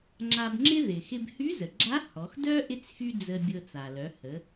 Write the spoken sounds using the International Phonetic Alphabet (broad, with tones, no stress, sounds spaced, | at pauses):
ŋ͡ǁ a˧ b ŋ͡ǁ ɪ˥ ð ɪ˩ x ɪ˧ b h y˧˥ z ə˩ ɡ͡ǁ a˧˥ h ɔ˩˧ x d œ˥ ʔ ɪ˥ t͡s x y˥ d͡z ə˧ bʲ ɤ˧ t͡s a˩ l œ˩˧ h ə˩˧